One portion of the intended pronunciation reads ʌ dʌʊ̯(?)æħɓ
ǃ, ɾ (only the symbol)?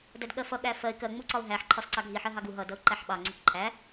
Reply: ǃ